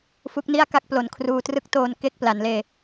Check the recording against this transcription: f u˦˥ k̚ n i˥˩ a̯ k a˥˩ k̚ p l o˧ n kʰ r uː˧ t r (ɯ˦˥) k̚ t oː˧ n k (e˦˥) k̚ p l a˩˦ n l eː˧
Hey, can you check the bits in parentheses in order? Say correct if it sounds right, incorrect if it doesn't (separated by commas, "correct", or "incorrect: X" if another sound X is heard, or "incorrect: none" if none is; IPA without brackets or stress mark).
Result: correct, correct